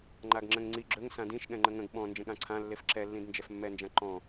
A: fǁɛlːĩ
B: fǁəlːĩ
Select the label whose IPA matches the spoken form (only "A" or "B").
A